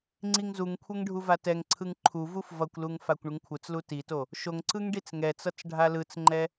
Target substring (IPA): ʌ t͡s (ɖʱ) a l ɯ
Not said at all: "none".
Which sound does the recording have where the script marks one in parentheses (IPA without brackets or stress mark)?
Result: ɖʱ